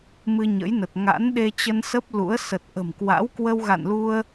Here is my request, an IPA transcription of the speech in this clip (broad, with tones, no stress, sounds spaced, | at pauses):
m ɨ˧ ɲ ə̰˧˥ j n ə˨˩ t̚ ŋ a̰˧˥ n ɗ e˧ t͡ɕ ə˧ n s ə˦˥ p̚ l ṵ˧˥ ə̯ s ə˨˩ t̚ ʔ ə̤˨˩ m k w a̰˧˥ w k w ə˧ w ɣ a̰˧˨ n l u˧ ə̯